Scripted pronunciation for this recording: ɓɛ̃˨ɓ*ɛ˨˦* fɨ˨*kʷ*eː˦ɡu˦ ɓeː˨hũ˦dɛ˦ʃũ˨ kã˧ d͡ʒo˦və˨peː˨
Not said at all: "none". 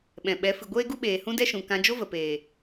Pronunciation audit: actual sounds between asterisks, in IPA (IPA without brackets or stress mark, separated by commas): ɛ˨˦, ɡʷ